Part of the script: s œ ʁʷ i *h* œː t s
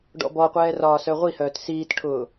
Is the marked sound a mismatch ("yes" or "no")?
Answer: no